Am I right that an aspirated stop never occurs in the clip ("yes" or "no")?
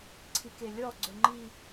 no